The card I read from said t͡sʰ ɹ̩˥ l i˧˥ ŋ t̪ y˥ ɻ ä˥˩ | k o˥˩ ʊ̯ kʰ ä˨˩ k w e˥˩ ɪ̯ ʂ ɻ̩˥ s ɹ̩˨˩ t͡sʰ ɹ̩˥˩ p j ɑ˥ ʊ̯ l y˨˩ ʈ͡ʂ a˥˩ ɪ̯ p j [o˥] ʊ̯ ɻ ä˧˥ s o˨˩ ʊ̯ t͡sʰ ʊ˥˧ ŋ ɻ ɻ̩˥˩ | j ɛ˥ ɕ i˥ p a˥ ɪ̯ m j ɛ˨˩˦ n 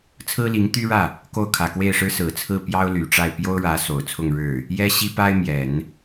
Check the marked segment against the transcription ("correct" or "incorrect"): correct